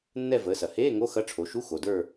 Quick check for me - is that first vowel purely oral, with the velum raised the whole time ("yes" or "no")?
yes